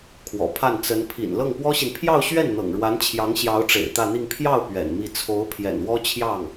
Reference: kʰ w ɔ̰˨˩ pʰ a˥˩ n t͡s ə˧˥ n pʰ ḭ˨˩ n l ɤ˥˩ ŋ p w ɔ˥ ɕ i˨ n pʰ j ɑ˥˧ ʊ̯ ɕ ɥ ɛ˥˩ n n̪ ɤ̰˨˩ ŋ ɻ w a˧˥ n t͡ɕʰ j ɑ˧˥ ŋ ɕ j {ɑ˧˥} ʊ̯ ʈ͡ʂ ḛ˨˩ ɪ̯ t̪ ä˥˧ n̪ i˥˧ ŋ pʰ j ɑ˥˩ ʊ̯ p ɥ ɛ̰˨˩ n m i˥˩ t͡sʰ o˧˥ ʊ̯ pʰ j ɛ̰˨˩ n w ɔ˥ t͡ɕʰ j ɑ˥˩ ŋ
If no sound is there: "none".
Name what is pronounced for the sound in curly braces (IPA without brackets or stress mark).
ɑ˧˥